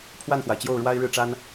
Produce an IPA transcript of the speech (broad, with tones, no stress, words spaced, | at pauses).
pʰwa˥˩nxwa˩ɪ̯ t͡ɕjo˥˩ʊ̯ɻwa˥ɪ̯ɻɻ̩˥˩ʈ͡ʂa˥n